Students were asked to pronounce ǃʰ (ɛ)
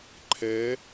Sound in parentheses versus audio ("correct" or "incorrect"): correct